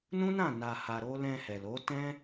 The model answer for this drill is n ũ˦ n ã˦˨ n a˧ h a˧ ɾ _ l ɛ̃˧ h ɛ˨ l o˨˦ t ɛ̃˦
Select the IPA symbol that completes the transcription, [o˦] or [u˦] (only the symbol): o˦